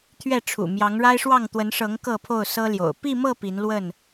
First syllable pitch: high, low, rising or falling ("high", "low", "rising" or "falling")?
falling